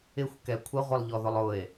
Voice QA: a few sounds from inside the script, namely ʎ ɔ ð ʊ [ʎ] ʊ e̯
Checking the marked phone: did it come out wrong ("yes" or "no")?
yes